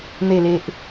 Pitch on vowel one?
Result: low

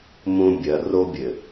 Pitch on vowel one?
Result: high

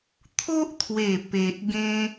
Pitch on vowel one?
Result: high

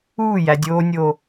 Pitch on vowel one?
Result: falling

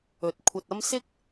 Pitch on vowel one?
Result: rising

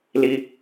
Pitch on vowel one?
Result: high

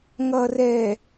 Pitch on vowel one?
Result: low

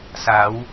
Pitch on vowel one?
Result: rising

